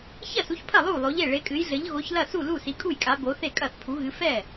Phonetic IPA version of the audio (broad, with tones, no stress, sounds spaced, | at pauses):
ç ɐ˥˩ s u˨˥ ç pʰ ɐ˥˩ lˠ u˥˩ lˠ o˨˥ ʎ e˥˩ ɭ e˨˥ kʼ ɨ˨˥ j ɮ ɘ˨˥ ʎ ɣ o˨˥ ç l ɐ˥˩ s u˥˩ l u˥˩ s i˨˥ kʼ u˥˩ j kʼ a˨˥ b o˨˥ θ e˥˩ kʼ ɐ˥˩ θ pʰ u˨˥ ɣ ɨ˨˥ f ɛ˥˩